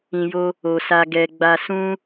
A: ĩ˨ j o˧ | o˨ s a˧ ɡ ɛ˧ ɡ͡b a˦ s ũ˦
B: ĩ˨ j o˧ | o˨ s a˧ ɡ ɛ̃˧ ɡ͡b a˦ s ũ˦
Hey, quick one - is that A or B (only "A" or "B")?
A